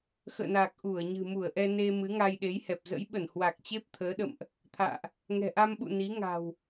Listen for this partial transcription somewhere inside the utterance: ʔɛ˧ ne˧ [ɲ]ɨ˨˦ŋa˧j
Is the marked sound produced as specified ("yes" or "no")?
no